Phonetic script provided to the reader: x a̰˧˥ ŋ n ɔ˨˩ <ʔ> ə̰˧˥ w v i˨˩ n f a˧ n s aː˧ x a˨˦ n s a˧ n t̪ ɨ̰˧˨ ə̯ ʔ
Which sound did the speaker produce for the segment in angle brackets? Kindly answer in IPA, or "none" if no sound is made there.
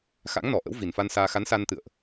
ʔ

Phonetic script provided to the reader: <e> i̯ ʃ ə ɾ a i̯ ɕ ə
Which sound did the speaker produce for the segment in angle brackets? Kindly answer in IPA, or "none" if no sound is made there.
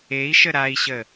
e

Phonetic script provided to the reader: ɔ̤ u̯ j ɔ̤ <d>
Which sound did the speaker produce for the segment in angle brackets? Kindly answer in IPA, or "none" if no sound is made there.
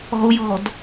d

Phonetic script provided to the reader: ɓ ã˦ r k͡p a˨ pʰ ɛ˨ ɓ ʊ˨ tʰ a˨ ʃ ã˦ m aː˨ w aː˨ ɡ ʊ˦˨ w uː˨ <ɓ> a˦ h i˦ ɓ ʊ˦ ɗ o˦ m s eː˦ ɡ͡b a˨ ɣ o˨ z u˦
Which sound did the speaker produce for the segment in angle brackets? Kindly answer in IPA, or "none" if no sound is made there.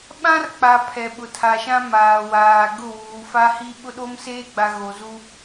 f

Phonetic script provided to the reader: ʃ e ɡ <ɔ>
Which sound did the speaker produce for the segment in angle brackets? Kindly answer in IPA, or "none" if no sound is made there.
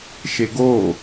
o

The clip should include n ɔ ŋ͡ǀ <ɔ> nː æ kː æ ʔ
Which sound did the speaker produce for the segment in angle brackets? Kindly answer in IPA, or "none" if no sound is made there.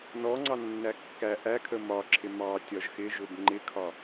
ɑ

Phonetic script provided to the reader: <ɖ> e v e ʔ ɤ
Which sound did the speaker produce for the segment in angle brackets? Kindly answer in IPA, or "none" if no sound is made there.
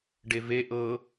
ɖ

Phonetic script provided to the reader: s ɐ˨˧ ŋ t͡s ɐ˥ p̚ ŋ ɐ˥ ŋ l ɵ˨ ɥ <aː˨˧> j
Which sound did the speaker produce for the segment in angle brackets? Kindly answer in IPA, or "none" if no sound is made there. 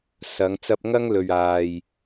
aː˨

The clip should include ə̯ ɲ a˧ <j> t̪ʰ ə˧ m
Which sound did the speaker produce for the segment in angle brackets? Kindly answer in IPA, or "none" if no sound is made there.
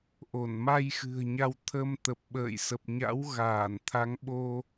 w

